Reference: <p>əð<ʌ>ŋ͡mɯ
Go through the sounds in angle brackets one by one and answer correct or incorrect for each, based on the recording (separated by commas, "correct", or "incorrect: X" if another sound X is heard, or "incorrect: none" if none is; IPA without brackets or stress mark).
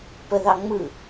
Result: correct, incorrect: ɑ